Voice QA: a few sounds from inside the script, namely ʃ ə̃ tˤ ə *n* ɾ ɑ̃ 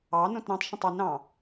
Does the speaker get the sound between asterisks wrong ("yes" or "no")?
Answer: no